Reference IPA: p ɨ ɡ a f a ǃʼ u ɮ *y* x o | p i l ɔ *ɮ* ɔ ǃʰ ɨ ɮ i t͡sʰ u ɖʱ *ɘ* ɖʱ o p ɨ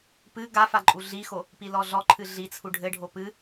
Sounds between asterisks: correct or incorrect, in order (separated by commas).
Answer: incorrect, correct, correct